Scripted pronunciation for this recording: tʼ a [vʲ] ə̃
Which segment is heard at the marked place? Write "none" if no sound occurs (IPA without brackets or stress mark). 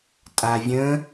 vʲ